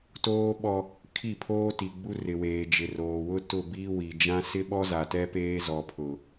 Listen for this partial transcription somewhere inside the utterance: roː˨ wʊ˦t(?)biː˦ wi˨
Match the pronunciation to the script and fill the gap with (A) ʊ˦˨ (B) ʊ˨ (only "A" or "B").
A